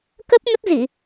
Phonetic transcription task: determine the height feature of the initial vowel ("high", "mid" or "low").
mid